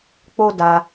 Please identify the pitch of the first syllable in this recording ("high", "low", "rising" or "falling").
high